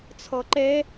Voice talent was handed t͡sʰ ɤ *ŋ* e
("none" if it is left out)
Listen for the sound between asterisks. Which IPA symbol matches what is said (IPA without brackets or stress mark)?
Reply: ǃ